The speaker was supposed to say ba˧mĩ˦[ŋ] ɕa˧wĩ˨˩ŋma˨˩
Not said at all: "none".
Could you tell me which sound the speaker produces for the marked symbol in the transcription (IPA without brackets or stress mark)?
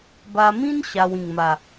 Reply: n